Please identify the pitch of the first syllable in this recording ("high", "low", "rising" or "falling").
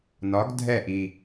rising